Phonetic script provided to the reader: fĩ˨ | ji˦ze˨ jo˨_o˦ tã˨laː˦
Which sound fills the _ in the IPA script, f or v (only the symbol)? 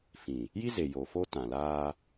f